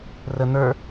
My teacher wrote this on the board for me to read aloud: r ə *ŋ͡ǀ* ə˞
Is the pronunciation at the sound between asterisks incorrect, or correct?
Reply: incorrect